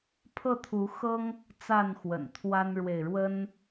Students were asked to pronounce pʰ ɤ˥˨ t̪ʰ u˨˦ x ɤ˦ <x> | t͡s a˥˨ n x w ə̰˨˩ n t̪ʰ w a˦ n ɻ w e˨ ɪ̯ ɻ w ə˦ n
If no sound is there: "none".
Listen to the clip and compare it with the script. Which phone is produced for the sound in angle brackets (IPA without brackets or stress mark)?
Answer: ŋ